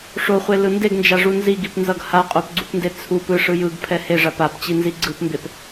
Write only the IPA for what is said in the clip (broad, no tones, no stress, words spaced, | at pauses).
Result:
ʂoχʷelɯ ndeɡnd͡ʒaʐu nziɡipnzʌɡ haqʼopɡ͡ǀupnde t͡sʰup ɯʂɯ jɯɡpʰɛ heʐap apt͡ɕinzi ɡ͡ǀɯpmbep